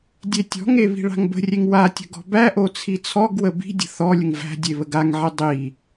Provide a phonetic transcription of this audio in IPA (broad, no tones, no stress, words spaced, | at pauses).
dʲetʲɔ̤ŋe βi̤ɭa̤ŋbə̤rʲeŋ watʲə̤ ɡɔ̤bæʔo t͡sʰit͡sʰɔɡwə bi̤dʲə̤ θɔlʲəŋ væ̤dʲe βəɡaŋʕi dˤi